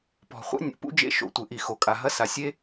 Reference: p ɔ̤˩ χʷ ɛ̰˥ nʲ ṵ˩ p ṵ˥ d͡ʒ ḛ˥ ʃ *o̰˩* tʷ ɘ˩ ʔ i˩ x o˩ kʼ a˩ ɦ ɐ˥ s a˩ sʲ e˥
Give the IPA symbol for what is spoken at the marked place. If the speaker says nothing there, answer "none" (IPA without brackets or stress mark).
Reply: o̰˩